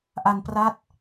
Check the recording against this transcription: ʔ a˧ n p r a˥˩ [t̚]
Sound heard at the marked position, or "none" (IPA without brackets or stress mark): t̚